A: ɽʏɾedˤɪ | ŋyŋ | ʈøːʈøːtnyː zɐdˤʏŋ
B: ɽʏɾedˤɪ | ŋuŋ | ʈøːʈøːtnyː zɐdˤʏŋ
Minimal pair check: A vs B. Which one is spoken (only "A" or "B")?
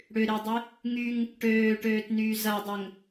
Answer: A